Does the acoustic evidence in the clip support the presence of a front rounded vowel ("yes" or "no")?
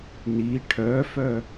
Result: yes